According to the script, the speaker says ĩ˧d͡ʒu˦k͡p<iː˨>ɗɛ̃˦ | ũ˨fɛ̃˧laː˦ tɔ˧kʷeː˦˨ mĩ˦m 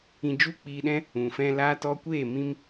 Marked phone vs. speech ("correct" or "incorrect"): incorrect